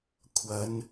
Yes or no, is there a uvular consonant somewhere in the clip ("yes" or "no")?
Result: no